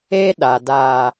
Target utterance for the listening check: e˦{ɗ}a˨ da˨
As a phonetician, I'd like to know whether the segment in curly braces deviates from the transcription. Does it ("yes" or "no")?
no